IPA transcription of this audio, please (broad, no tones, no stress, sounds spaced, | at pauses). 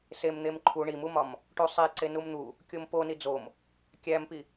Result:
s e m n̪ e m ǃʰ u ɳ i m u m ɒ m | ʈ u sˤ e ǀ e n u m n̪ u | kʲ o m p o n i d͡z o m | kʲ æ m p i